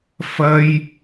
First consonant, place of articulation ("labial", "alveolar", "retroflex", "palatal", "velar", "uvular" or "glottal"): labial